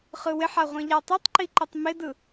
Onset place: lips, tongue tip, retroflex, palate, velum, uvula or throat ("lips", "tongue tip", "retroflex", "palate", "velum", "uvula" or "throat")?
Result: uvula